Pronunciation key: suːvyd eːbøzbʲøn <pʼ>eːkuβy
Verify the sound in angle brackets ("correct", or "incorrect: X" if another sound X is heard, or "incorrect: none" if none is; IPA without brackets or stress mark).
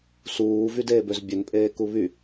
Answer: correct